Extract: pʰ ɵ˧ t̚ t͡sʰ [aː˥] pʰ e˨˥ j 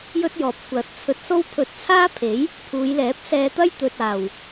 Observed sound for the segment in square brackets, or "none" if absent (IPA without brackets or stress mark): aː˥